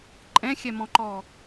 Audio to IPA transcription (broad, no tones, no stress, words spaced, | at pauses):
ǃʼɛ̃xʲɛmɔ̃ǃɔ